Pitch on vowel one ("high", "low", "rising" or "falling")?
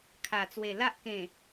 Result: low